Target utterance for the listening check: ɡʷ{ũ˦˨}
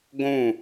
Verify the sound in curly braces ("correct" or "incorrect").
correct